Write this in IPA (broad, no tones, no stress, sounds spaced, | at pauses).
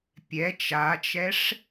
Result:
pʲ ɛ t͡ʃ a t͡ʃ ɛ ʂ